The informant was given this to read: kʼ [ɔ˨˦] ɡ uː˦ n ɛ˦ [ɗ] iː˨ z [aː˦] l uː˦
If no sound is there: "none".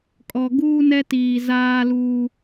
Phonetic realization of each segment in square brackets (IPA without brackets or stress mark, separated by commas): ɔ˨, t, aː˦